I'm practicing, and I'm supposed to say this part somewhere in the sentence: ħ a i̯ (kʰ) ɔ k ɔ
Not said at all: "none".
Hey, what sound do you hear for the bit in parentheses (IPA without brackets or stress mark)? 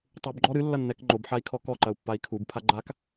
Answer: kʰ